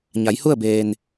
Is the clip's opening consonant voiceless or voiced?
voiced